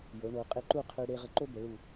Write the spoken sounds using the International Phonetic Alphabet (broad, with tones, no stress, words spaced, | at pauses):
jo˩˧ɳo˩˧ qʼe˧ǃu˥˧ qʰø˧ɽe˧ ʁə˧ǃo˥ bə˩˧ɭu˧˩